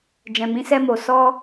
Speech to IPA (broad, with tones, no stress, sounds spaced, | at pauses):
d͡ʒ ɛ̃˨ m ĩ˨˦ s ɛ˧ m o˨ s ɔ˧